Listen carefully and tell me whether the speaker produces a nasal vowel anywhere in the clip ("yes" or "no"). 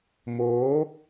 no